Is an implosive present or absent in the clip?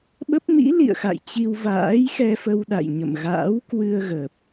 present